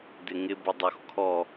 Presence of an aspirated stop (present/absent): present